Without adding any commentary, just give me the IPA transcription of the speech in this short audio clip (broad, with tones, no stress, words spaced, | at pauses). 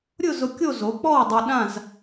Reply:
ɾʲʊ˥˧zʊ˧ kʲo˥˧zo˨˥k͡pɔ˥˧wdˤi˧ ɗã˥˧z